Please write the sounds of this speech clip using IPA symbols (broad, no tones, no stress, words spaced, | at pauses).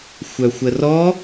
xʷœxʷərɔ